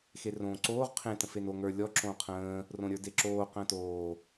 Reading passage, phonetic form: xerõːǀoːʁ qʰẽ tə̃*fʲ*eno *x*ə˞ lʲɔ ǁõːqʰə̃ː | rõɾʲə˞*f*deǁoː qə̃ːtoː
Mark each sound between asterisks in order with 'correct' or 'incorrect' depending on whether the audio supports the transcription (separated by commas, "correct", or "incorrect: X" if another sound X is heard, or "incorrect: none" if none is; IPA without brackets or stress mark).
incorrect: f, incorrect: ŋ, incorrect: none